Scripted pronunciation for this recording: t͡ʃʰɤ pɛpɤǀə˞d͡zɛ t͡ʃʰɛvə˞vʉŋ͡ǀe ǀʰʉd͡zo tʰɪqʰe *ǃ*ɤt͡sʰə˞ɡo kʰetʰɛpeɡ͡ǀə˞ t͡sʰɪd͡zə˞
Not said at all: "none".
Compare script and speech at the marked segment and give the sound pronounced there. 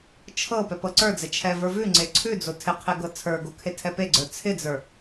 ɡ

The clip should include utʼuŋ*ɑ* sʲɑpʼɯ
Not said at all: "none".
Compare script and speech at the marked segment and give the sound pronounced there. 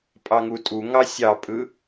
ɑ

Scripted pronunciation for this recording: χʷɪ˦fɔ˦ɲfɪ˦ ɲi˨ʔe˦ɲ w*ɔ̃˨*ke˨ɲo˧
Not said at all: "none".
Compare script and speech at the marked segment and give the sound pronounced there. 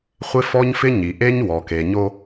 ɔ˨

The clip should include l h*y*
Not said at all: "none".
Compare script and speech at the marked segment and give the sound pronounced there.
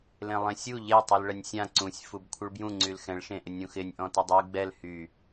y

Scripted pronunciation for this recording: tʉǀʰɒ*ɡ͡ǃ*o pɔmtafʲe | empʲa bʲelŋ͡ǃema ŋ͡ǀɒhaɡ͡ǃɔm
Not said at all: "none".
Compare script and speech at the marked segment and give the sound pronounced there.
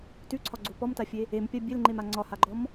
ɡ͡ǀ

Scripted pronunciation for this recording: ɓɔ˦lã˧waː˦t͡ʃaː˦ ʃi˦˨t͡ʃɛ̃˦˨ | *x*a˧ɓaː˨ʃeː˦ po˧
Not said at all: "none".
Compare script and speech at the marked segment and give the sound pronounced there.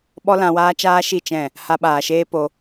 h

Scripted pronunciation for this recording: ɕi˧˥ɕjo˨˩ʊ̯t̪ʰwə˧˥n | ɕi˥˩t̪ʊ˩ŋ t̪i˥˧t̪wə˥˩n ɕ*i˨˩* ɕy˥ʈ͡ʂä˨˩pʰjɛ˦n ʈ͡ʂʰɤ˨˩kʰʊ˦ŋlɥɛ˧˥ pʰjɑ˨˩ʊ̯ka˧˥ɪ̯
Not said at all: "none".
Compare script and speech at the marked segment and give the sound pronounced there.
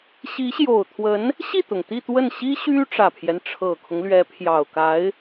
i˥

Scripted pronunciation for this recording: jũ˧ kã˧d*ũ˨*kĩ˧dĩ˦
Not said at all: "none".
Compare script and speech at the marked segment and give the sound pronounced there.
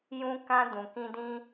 ũ˨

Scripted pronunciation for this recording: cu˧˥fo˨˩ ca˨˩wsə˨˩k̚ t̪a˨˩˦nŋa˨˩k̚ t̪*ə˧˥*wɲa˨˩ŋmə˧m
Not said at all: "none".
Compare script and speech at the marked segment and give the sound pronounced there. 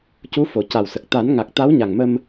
a˧˥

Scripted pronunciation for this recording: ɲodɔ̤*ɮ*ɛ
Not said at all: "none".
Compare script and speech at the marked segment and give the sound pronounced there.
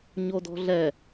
ɮ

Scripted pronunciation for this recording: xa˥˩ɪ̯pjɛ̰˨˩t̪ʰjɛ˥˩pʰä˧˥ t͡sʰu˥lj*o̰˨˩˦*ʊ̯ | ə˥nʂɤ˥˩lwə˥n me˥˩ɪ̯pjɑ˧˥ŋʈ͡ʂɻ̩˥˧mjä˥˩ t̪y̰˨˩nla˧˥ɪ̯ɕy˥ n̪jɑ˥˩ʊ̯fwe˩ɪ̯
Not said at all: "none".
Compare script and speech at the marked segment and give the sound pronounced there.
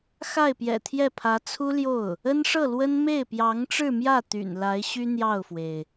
o˥˩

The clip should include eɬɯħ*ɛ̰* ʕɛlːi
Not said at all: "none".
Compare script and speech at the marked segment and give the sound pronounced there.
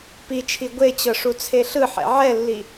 ɛ̰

